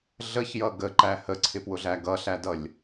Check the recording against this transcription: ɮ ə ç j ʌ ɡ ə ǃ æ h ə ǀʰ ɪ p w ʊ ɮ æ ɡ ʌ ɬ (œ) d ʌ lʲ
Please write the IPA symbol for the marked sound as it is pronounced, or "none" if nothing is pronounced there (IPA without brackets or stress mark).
æ